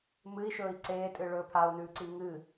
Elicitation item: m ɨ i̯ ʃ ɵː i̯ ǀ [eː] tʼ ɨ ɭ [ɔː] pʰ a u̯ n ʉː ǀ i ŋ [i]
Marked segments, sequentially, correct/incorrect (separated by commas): correct, incorrect, incorrect